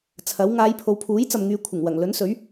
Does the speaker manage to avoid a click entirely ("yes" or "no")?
yes